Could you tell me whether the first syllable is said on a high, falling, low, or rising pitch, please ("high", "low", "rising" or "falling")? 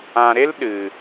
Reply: low